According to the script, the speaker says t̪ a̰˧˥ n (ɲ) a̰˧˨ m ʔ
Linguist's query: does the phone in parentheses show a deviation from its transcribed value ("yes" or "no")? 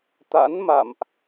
yes